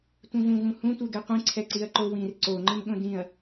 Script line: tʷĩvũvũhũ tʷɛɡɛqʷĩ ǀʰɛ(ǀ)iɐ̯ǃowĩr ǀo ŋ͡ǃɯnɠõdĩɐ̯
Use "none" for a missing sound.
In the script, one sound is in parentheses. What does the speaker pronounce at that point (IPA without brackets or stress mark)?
ǀ